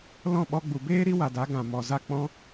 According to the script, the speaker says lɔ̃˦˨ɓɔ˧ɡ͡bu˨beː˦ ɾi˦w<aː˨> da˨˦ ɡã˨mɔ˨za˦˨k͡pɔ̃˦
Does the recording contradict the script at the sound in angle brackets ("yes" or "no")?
yes